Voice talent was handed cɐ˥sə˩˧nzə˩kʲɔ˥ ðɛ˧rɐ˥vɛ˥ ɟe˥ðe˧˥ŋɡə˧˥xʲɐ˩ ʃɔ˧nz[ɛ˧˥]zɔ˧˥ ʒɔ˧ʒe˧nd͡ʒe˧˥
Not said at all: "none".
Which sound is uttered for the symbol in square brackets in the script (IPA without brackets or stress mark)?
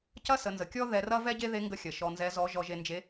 ɛ˧˥